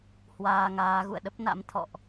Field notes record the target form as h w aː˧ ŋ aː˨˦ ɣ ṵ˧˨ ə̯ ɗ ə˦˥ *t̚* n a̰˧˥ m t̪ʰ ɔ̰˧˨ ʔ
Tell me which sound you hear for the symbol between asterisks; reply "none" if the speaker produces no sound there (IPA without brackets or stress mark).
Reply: p̚